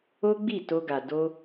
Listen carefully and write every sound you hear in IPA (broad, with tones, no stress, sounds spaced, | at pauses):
o˦ ɡ͡b i˦˨ t o˧ ɡ a˨ d o˧